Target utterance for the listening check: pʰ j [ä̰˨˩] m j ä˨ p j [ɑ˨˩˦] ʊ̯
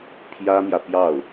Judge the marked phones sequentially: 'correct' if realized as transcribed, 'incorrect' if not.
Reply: incorrect: ä˥, incorrect: ɑ˥˩

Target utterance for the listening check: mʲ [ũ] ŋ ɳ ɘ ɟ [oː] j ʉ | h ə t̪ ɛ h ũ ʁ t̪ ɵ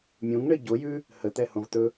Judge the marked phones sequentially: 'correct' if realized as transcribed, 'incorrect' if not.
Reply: correct, incorrect: o

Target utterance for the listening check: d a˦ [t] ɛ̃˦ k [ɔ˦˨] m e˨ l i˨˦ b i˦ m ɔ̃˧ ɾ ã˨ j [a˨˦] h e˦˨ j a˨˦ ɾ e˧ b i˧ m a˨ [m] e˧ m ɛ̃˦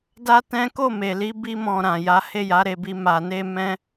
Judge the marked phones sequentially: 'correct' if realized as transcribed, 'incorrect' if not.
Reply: correct, incorrect: o˦˨, correct, incorrect: n

